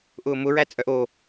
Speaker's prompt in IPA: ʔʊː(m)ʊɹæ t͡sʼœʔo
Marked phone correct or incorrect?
correct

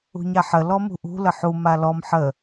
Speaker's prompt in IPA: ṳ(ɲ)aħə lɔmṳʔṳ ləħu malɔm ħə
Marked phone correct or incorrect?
correct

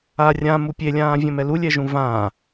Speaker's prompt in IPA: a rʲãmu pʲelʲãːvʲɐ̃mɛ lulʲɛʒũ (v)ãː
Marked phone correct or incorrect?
correct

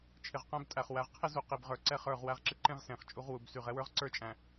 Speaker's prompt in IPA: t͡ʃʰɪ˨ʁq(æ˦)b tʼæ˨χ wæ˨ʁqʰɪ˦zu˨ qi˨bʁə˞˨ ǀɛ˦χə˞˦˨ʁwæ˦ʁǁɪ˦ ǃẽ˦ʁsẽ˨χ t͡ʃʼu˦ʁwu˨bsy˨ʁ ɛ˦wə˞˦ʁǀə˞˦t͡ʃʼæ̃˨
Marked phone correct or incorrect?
incorrect: æ̃˦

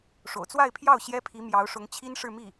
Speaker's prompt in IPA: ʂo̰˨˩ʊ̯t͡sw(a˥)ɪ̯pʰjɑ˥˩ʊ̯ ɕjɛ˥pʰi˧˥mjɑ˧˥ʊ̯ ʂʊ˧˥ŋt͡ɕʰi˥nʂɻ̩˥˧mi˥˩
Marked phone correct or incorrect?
incorrect: a˥˧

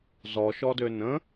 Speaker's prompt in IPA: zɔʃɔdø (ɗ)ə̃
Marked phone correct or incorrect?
incorrect: n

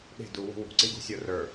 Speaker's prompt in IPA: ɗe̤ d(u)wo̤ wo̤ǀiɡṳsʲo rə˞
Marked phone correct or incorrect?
correct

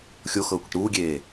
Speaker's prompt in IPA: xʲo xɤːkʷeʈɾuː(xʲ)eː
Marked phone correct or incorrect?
incorrect: ɡʲ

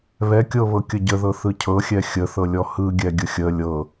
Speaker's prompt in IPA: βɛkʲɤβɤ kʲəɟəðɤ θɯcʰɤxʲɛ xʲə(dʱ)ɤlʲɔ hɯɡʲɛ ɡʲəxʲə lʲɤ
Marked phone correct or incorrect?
incorrect: θ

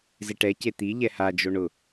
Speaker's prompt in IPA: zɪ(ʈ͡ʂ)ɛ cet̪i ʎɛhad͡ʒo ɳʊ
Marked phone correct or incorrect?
incorrect: ʈ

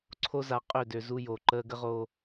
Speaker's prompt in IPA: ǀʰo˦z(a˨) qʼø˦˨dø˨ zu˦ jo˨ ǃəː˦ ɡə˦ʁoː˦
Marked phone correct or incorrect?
correct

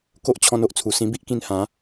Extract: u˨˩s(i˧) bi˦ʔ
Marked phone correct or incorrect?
incorrect: ĩ˧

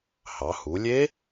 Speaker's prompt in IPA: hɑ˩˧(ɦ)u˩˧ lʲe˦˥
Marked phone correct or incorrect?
incorrect: h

